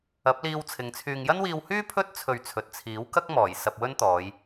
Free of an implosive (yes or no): yes